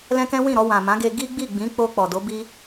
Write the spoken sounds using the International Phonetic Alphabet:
l ɛ̃˦ k ɛ̃˦ w ĩ˦˨ ɾ ɔ˧ w ã˨ m ã˨˦ ɡ e˧ ɡ i˦ ɡ͡b i˦˨ ɡ͡b ĩ˨˦ k͡p o˧ k͡p ɔ˨ d o˨˦ b i˦

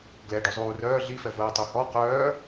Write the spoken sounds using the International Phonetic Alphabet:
ɡ l ɛ ɖ o zˤ uː r œː ɮ i f ɛ v əː tˤ o h ɔ q œː

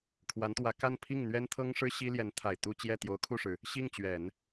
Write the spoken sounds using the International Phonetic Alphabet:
kʰ w a˧˥ n t̪ w ä˧˥ k a˥˧ n pʰ i˥˩ ŋ n̪ ɥ ɛ˥ n t̪ʰ ɤ˥ ŋ ʂ ɻ̩˥ ɕ i˥ l j ɛ˧˥ n t̪ʰ a˨˩ ɪ̯ t̪ u˥˧ t͡ɕ j ɛ˥˩ t̪ j o˧˥ ʊ̯ kʰ u˥˩ ʂ ɻ̩˩ | ɕ i˥˩ ŋ t͡ɕ ɥ ɛ˨˩˦ n

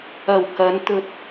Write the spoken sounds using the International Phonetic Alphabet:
ɐ˨˩ w k ɐ˨˧ n t̪ ɵ˨ t̚

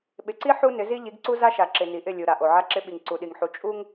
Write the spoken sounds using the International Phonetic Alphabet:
ɓ ɪ˨ ǀ i˦ ħ u˦ n ɪ˨˦ z i˦ ʎ i˨˦ ɡ ǀ u˦ z a˦ ʃ a˨ ǁ ɪ˨ n i˨ ʔ ɪ˦˨ lʲ u˨ ɾ a˨ ʔ o˨ ʕ a˦ ǁ ɪ˦ ɓ i˨ ŋ ǀ u˨ ɗ i˨ ŋ ħ u˨ t͡ʃʼ u˦ ŋ

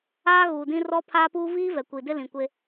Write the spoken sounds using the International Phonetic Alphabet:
aː˦ ɣ uː˨ d ĩ˦ r ɔ˦ pʰ aː˦ p uː˦ v iː˦ v ɛ˨ kʷ iː˨ d ɪ˦ l ĩ˨ kʷ e˦

